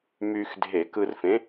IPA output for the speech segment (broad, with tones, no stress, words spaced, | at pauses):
myː˧xdʱe˧˩˧kɯ˧rfẽ˨˥